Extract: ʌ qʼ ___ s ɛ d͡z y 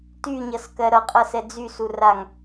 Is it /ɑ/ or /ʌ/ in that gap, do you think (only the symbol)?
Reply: ʌ